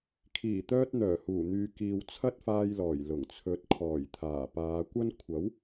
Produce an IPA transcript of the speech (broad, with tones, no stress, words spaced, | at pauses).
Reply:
kʰiː˨˩t̪œː˧t̚ n̪œː˨˩huː˨˩n̪yː˨ kiː˨wt͡sʰɐ˥t̚faː˧jlɔː˨˩j lʊ˨˩ŋt͡sʰɵ˨˥t̚ kʰɔː˨˩jt̪ʰaː˨˩paː˨˧ kʷɐ˥n kʷʰɐ˨˥w